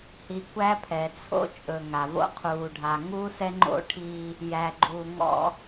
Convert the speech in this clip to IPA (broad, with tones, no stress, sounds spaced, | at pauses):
h i˨ kʷ æ˦ pʰ ɛ˨ t͡sʰ o̰˦ t͡ʃʼ ɵ˨ ŋ a˨ v o̰˦ qʰ uː˨ ɖʱ a˨ ŋ uː˦ s ɛ˦ ŋ͡ǃ o̰˦ ʈʰ iː˦ | j æ˨ ɡ͡ǃ u˨ ŋ ɔ̰˦